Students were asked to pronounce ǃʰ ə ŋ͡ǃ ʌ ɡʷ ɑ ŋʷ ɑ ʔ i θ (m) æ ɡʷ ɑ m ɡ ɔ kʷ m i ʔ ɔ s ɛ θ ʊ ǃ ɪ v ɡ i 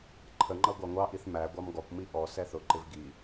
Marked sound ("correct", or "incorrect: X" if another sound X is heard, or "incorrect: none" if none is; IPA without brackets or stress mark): correct